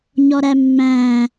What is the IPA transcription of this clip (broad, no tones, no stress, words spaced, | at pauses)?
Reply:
ɲɔɾæmːæ̃